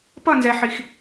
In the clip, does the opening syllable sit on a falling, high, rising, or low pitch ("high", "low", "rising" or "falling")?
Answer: falling